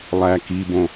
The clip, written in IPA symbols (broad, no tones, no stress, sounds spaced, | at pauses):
lˠ æ k i b õ